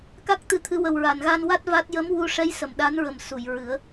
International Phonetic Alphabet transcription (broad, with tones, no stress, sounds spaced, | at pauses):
k a˦˥ k̚ t̪ ɨ˧˥ t̪ʰ ɨ˧˥ w ə˨˩ w ɹ a˨˩˨ n ɣ a˧ n w a˦˥ t̚ v a˦˥ t̚ j ə˧˥ m w u˧ ʂ ɛ˧˥ j s ə˨˩˨ m ɗ a˧˥ n ɹ ə˨˩ m s u˨˩˨ j ɹ ɨ˨˩˦ ə̯